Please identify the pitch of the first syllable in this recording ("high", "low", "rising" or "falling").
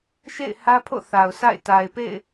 falling